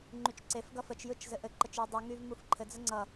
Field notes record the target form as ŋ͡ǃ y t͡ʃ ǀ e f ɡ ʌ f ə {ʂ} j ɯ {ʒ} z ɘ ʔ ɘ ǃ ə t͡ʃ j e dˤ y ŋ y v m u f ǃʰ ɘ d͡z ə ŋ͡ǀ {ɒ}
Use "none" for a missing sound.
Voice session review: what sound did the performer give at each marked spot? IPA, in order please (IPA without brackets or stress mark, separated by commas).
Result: t͡ʃ, t͡ʃ, ʌ